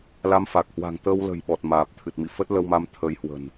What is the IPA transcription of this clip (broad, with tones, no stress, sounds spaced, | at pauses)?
l a˧ m f a˨˩ k̚ h w a̤˨˩ ŋ t̪ ə˧ w l ə̤˨˩ j ɓ ɔ˨˩ t̚ m aː˨˩ p̚ t̪ʰ ɨ˨˩ t̚ m ḭ˧˨ f ə˦˥ t̚ l ə˧ w m a˨˦ m t̪ʰ ə˨˦ j h w ə̤˨˩ n